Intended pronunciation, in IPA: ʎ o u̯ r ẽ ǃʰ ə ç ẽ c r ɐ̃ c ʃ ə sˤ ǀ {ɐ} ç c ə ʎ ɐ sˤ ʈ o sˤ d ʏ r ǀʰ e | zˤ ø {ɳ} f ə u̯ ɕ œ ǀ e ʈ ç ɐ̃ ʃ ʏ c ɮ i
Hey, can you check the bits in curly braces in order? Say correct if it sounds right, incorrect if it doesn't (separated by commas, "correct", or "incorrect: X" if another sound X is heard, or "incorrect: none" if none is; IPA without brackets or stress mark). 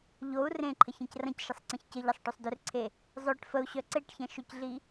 incorrect: ɐ̃, incorrect: ʈ